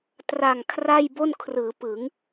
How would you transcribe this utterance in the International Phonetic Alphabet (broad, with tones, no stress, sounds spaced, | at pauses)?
t r a˨˩ ŋ kʰ r a˥˩ j b o˥˩ n kʰ r ɯː˩˦ p ɯ˩˦ ŋ